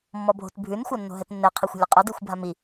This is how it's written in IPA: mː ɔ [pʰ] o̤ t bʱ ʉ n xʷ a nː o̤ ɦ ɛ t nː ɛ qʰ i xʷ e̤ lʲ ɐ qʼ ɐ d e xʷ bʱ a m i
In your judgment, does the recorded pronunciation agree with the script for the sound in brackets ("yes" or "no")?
no